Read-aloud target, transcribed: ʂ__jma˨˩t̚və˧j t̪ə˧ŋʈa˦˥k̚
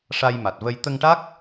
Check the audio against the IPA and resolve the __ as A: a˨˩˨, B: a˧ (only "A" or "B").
B